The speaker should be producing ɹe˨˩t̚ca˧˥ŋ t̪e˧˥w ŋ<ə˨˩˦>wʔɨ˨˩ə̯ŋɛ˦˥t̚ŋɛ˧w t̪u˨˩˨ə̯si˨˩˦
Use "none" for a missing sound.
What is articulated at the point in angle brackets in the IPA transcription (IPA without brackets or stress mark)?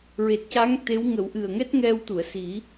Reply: ə˨˩˦